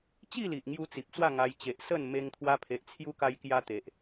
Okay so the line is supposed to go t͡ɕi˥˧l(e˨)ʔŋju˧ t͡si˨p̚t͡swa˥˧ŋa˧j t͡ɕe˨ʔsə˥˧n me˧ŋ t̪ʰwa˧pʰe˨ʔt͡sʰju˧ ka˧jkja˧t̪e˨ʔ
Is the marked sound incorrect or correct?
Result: incorrect